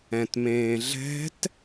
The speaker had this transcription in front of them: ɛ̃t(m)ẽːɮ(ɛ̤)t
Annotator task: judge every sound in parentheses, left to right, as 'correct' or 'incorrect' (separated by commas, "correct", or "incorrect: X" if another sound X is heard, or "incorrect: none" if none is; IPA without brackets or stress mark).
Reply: correct, correct